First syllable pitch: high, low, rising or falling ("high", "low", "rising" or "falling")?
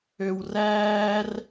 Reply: high